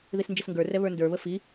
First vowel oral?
yes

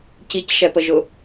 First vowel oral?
yes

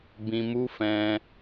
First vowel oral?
no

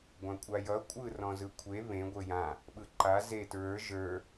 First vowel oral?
no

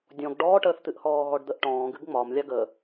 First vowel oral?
no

